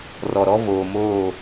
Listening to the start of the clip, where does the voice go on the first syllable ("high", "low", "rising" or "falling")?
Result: low